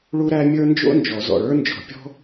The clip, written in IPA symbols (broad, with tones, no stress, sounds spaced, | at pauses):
ɭ u˥ ɾ æ˥ mʲ ə˞˥ n d͡ʒ o̰˥ n d͡ʒ ɔ˨˩˦ z ɔ̰˩˧˩ ɭ ə˞˥ n d͡ʒ ɔ̤˨˩˦ pʲ ɔ̤˥